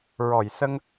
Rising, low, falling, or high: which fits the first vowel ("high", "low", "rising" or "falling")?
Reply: low